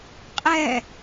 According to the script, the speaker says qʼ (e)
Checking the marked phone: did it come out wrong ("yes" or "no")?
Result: yes